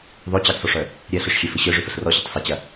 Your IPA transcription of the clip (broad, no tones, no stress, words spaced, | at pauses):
ðˤɵ t͡ɕəɡsˤɵʂœ | ɾʲɜɬœʂxʲɛfə ɕœʐɵfəɬ rɔɕɐtˤ sˤɐt͡ɕɐ